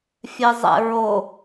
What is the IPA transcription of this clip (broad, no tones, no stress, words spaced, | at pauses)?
fʲɛzˤɛ̰ɹo